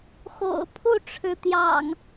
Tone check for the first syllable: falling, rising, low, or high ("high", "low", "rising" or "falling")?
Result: low